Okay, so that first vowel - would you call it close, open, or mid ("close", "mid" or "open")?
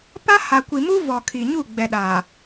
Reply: open